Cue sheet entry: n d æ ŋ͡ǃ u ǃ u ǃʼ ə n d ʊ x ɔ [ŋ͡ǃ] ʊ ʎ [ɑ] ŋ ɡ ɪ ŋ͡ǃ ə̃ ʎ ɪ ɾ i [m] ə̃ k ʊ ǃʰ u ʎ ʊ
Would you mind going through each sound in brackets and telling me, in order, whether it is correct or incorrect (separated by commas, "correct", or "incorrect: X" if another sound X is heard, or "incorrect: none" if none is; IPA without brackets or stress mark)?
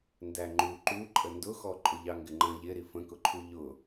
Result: incorrect: ǃʼ, correct, incorrect: f